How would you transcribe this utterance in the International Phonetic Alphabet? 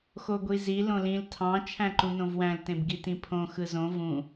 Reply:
x o ɡʷ i z i l õ l ĩ l tʰ ɑ̃ t͡ʃʰ æ̃ ǃ ũ n õ v w æ̃ l t ẽ b ɡ i t ĩ pʰ õ x ɯ z õ v ũ

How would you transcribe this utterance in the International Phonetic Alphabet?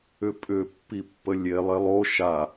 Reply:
ʏ pʼ ʏ pː i pː ə lʲ e lˠ e lˠ o ʃ a

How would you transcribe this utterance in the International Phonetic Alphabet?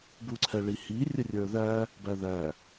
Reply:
b u ǀʰ ɛ ɭ i h i rʲ ə rʲ ə˞ ð æ | b æ ð æ

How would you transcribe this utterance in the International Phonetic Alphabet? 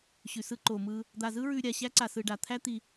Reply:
ɕ ʉ˧ s ɯ˦ ǃ o˧ m ɯ˦ | d̪ a˦ z ɯ˦ ɹ ʉ˧ ɾʲ a˧ ɕ æ˦ ǀ a˧ s ɯ˧ ɖ a˧ t̪ʰ æ˦ t̪ i˧

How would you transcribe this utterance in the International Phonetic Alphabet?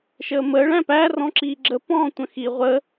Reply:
ʃ əː m əː ɭ æ̃ p æ r ɔ̃ ǁ iː ɡ͡ǁ ə p ɔ̃ː tʷ ə̃ x i ʁʷ ə

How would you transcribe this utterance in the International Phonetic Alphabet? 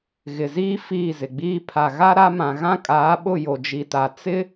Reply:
ɣ ɪ˨ z iː˦ f iː˦˨ z ɪ˨ ɡ͡b iː˦ pʰ a˨ ɣ a˦ ɾ a˦ m ã˨ ɣ ã˦ kʼ aː˨˦ ɓ ʊ˦˨ j o˨ d͡ʒ i˨ t a˨ t͡s ɪ˦

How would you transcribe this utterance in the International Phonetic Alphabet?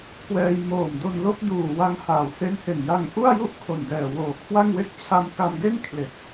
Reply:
kʰ w ɛː˧ j m oː˨˩ m d o˧ n l o˦˥ k̚ d uː˨˩ w a˦˥ ŋ h aː˩˦ w s e˦˥ n h e˨˩ n j a˧ ŋ ʔ u˥˩ a̯ j u˥˩ ʔ kʰ o˨˩ n d ɛː˨˩ w oː˨˩ kʰ w a˥˩ ŋ w e˥˩ k̚ t͡ɕʰ a˧ m k a˧ m d e˥˩ n kʰ l e˨˩ k̚

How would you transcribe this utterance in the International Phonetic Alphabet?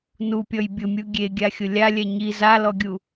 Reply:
n u pʲ ɔ j bʲ ʊ mʲ u ɡʲ e ɡʲ a xʲ ʊ lʲ a lʲ ɛ ɲ i z a l ɔ ɡʲ u

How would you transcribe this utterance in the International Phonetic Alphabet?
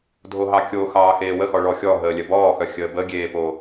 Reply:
dʱ o ɦ ɑ kʲ o x ɑː x eː w ə x ɔ ɭ ɔ xʲ ɔ ɦ əː lʲ œ b ɔː x œ xʲ əː b ə ɡʲ eː p o

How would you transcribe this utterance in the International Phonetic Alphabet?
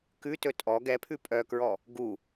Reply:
k ʉ t ɵ tʼ ɔ ɡ ɛ pʰ ʉ pʼ œ k ɹ ɔ | ɡ u

